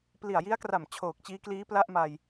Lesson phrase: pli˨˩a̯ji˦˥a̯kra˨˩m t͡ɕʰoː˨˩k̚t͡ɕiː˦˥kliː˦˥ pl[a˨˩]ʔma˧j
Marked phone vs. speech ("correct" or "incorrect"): incorrect